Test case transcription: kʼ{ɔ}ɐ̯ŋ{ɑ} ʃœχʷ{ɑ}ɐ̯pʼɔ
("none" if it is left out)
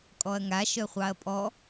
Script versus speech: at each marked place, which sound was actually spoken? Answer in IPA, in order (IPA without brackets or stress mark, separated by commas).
ɔ, a, ɑ